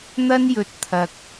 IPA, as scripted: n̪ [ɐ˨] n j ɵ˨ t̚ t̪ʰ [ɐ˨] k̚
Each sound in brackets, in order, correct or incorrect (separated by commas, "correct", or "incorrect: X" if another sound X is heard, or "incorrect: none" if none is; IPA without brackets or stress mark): incorrect: ɐ˥, correct